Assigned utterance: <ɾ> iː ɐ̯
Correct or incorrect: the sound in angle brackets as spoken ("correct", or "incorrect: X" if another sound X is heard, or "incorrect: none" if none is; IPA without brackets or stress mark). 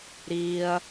correct